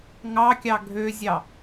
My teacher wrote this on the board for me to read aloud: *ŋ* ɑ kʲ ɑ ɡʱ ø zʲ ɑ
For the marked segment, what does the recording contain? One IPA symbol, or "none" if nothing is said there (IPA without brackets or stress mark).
ŋ